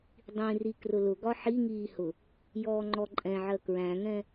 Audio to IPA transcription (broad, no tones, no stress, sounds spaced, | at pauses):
dˤ ĩ r i k r ʊ l ʊ ɡ ɒ ħ i ŋ iː h ʊ | j ɔː ŋ͡ǃ ɔ ǃʼ ɛ̃ ʕ ɜ k ɹ æ̃ ŋ ɛ̃